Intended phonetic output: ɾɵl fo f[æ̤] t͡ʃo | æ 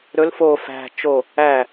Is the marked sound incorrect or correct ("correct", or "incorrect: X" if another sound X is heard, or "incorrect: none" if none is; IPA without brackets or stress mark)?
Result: correct